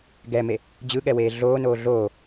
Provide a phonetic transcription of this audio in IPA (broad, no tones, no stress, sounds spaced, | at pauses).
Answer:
ɡ ɛ m e | d͡ʑ ɯ ɠ ɛ w eː ɮ oː n oː ɮ oː